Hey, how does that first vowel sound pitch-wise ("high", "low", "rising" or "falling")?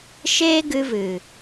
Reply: high